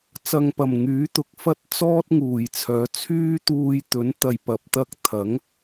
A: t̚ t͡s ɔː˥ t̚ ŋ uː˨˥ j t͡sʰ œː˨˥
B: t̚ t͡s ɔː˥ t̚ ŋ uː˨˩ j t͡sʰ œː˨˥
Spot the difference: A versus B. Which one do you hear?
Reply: B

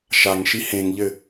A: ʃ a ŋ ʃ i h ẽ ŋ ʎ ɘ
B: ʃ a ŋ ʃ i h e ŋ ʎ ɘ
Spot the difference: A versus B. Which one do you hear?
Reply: A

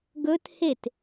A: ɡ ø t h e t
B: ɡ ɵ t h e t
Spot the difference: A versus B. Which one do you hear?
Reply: B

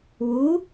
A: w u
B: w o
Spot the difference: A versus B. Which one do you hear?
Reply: A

